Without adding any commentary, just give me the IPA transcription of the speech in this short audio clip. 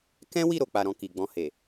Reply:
k ɛ̃˦ w i˦˨ ɾ o˨ k͡p a˨ ɾ ɔ̃˨ k i˨ ɡ͡b ɔ̃˧ h e˨

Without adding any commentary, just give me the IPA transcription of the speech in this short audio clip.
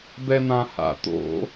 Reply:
b ɛ n̪ ã h a̰ t̪ o̰

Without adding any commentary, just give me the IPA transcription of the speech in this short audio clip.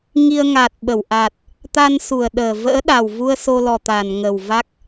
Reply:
ŋ i˧ ə̯ ŋ a˨˩ t̚ ɓ ə˧˩ w ʔ a˨˩ t̚ | t̪ a˧ n s u˨˩ ə̯ ɗ əː˨˩ v ə̰ː˧˥ ɗ a˨˩ w v u˧ ə̯ s o˧ l ɔ˨˩ t̪ a˧˩ n ŋ ə˨˩ w v a˦˥ k̚

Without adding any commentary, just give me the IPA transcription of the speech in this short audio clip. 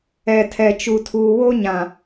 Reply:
ɛ˨ tʰ ɛ˨ t͡ʃ u˨ tʰ uː˨ w o˦ ɲ ã˨

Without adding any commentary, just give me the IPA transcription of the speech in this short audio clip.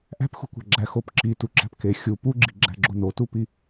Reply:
ʔ æ̤ p x ṳ kʷ æ̤ ɡ͡ǁ æ x o p ǁ i t u ǁ æ̤ p k e xʲ u p u ɡ͡ǁ i ɡ͡ǁ æ̤ ɡ͡ǁ o n o t u p i

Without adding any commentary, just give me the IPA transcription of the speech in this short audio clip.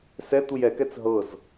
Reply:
s ɛ t̪ u j ɛ k ɛ t͡s ɦ ɤ z

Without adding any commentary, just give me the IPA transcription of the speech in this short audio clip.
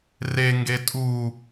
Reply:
r e ŋ ɡ e tʼ u

